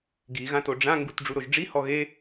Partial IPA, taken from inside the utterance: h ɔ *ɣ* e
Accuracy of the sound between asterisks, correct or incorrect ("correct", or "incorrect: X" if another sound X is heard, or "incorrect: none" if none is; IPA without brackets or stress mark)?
correct